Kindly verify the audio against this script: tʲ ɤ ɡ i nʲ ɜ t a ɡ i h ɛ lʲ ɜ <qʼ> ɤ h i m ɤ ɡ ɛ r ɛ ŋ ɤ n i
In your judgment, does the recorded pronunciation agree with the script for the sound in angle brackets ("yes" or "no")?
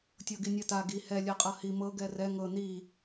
yes